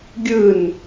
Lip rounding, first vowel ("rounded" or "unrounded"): unrounded